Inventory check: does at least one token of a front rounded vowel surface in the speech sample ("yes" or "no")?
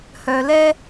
yes